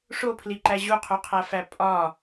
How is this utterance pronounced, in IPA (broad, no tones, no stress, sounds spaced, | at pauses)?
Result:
ʂ o pʰ l i ǃ æ ʑ u qʰ u qʰ æ f æ pʼ ɒ